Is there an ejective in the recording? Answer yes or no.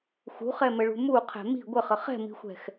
no